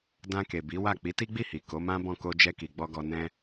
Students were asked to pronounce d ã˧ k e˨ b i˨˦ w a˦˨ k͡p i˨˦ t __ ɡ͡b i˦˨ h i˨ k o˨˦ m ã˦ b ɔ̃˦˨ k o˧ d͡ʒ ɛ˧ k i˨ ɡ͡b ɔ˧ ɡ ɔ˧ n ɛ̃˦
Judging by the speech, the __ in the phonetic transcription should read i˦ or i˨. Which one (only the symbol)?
i˦